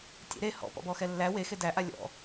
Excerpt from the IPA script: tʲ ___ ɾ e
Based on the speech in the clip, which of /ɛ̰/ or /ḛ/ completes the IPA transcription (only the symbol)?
ḛ